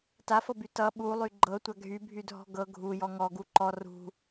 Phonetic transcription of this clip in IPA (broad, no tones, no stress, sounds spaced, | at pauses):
t a f ɤ b y t ʌ ɓ u lˠ y ɡ͡ǃ ɤ tʷ a ɡʱ y bʱ y dʱ ɔ̤ ɡ ɤ ɡʱ u j ɔ ŋ ɔ ɡ u ǃ ɔ r ṳ